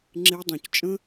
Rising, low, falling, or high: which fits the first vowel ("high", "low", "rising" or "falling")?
high